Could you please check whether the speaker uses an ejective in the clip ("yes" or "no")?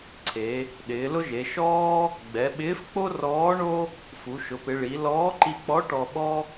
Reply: no